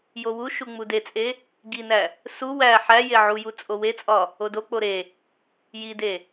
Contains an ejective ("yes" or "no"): yes